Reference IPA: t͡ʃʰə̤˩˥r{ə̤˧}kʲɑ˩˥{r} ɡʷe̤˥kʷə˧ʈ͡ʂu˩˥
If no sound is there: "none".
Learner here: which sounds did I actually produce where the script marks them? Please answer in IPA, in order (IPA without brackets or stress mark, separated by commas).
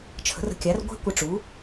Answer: ə̤˧, r